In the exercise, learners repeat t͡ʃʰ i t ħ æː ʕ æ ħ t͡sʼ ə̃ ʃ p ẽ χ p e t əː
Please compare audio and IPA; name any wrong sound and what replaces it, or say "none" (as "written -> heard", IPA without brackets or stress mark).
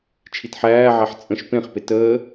none